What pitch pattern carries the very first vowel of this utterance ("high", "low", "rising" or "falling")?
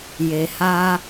low